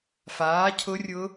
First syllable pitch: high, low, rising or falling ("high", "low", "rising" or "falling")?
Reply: rising